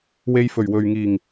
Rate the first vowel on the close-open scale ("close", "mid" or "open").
mid